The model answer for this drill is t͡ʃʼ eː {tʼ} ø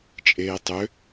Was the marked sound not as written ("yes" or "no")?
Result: yes